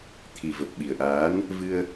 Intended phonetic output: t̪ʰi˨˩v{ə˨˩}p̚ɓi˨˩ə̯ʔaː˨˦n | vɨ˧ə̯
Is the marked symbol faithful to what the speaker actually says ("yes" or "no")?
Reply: yes